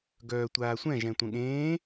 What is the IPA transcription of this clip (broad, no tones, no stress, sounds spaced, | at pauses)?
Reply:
ɡ œː tʷ aː sʷ ɛ̃ ʒ ɛ̃ tʷ ə̃ ɠ ẽː